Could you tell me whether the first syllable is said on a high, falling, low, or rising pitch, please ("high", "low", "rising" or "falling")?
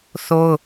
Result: high